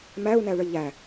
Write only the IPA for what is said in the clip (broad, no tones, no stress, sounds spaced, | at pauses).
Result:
m æ u̯ n æ ɭ ə ʎ æ